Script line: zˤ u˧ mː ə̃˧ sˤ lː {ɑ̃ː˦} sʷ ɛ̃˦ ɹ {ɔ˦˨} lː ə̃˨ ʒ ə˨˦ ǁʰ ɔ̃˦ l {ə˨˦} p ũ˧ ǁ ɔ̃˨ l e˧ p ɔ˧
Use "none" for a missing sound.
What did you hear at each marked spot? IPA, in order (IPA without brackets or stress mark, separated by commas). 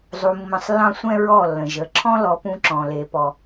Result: ɑ̃˦, ɔ˦˨, ɔ˨˦